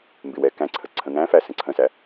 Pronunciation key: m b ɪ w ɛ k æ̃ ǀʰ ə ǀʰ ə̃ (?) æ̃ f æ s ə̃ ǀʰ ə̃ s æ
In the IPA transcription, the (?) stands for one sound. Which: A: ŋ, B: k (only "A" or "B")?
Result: A